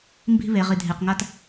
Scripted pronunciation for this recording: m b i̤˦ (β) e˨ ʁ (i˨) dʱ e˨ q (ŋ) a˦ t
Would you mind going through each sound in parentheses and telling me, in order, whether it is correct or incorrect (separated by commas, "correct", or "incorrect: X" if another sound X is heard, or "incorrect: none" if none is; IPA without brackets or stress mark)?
correct, correct, correct